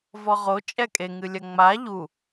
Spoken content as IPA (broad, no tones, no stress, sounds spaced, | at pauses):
v ɔ ʁ o t͡ʃʼ ɛ kʼ e ŋ ɨ lʲ ɐ ŋ͡m a ʎ u